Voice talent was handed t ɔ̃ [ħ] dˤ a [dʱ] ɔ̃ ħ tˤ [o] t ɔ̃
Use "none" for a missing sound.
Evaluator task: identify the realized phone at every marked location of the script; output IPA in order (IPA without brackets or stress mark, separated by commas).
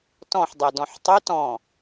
ħ, d, o